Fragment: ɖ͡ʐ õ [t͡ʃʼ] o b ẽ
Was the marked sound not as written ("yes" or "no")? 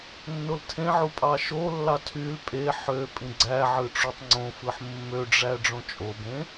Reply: no